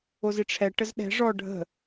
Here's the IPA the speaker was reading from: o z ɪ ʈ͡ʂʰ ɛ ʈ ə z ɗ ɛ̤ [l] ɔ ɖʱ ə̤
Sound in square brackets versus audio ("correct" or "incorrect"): incorrect